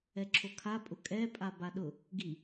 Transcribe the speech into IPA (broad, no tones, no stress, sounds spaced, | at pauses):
ɛ ǁʰ o kʰ a pʼ ʊ kʼ ɛ pʼ a b a ɗ ʊ | ɡ i